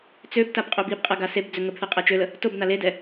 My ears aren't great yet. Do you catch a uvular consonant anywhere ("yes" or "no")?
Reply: yes